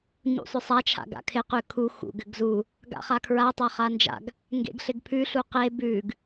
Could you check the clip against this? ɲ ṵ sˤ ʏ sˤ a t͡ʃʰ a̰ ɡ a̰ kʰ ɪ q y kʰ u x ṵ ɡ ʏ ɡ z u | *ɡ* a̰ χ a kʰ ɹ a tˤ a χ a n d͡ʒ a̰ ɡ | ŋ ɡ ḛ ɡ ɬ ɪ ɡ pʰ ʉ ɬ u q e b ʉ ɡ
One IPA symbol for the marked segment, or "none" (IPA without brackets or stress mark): ɡ